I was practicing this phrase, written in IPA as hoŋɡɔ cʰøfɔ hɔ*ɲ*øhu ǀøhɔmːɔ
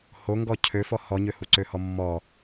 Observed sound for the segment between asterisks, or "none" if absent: ɲ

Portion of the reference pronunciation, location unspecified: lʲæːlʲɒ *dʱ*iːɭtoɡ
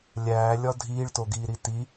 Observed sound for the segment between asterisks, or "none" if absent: dʱ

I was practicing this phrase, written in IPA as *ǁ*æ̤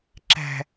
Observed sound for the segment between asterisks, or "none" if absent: ǁ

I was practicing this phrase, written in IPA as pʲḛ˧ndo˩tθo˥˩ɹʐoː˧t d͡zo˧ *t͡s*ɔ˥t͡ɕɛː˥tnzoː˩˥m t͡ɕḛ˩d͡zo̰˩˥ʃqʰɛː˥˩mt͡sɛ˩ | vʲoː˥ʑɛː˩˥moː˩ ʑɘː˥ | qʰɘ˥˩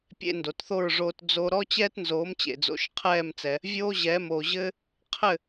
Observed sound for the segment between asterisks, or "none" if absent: ɾ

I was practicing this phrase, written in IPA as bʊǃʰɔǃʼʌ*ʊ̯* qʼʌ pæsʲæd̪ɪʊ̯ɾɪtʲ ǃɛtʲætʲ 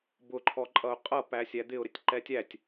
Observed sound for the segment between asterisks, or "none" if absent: ʊ̯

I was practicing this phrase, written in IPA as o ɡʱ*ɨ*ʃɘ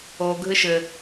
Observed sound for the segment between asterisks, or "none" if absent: ɨ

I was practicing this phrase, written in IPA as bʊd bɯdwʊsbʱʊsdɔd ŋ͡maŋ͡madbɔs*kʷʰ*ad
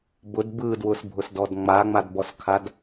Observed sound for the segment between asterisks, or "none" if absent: kʰ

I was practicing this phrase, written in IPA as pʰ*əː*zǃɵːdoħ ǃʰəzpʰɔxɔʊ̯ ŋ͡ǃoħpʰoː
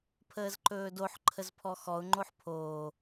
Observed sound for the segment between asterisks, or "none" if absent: əː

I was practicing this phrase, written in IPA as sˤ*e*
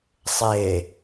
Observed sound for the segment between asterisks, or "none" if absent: e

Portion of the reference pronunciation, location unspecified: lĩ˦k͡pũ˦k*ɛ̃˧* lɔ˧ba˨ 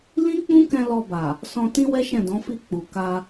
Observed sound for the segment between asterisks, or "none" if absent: ɛ̃˧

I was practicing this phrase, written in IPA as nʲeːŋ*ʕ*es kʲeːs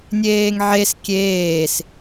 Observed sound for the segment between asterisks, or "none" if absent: ʕ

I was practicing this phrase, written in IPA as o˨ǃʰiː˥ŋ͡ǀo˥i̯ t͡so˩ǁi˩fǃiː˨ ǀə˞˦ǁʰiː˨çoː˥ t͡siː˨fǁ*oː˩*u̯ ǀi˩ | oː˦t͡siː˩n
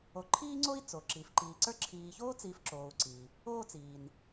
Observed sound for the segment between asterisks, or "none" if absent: oː˩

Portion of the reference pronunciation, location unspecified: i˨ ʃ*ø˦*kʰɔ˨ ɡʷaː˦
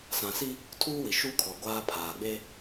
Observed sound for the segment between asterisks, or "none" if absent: u˦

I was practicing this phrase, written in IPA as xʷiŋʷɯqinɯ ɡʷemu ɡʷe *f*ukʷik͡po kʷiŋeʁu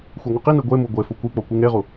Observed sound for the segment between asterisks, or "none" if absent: f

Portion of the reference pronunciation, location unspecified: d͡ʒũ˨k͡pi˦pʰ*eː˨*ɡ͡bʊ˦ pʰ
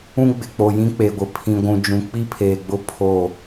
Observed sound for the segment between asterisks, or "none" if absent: eː˨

